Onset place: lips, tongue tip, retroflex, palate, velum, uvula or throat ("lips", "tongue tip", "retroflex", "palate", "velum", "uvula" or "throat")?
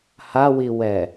throat